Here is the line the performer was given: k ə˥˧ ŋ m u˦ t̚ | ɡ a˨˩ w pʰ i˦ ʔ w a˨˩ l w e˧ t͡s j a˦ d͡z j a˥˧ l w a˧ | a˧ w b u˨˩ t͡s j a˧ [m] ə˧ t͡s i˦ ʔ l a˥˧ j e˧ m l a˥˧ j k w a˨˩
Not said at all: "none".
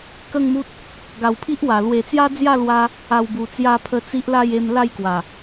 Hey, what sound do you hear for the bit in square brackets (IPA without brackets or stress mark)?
pʰ